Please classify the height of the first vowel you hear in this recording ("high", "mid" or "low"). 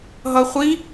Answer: mid